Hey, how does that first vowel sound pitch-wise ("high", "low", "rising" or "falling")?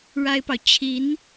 high